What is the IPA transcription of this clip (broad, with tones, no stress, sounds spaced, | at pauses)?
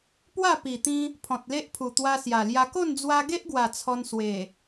p w a˥˧ p i˨˩ t̪ ĩ˧ | pʰ ɔ̃˨ t̚ l e˦ ʔ pʰ u˨˩ t̪ w a˧ s j a˨˩ l j a˧ k o˥˧ n d͡z w a˧ ɡ e˦ ʔ ɡ w a˨˩ t͡sʰ ɔ˧ n s w e˨˩